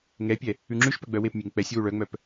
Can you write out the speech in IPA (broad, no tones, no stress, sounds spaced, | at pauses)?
ŋ ɛ pʲ ɛ | ʉ ŋ͡ǁ ʉ ʃ p œ ɡ͡b œ w e p mʲ e ŋ k͡p ɛ sʲ w u ɭ œ ŋ͡m œ p